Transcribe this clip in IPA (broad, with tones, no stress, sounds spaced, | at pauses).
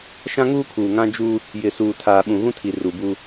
ʃ ã˦ ŋ uː˦ kʰ uː˨ ŋ ã˦ d͡ʒ u˦ | j ɪ˨ s uː˨ tʰ aː˨ ɓ ũ˨ ɣ ũ˦ tʰ i˨ r u˨ b u˦